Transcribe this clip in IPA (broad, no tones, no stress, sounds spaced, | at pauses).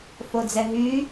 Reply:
f o d͡z ɛ ɦ y